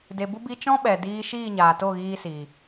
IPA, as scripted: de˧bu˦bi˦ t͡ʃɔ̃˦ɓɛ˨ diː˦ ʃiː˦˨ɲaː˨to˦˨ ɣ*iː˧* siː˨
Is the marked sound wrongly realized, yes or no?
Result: no